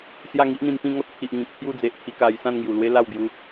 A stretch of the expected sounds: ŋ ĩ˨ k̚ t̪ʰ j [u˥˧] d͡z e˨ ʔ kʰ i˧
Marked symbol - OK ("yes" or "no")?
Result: yes